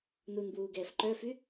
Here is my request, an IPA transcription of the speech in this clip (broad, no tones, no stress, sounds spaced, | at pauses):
n u n b w uː ɡ ɛː f ǃ œ f y